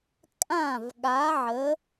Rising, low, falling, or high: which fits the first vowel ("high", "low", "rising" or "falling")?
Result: falling